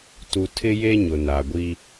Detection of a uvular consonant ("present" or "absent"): absent